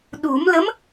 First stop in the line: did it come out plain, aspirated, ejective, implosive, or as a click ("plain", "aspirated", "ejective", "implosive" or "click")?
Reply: implosive